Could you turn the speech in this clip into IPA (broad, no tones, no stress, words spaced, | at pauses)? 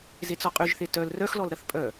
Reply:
zet͡sɔqʼyʒθe tœl rœxlɔlɾɐθ pʼœ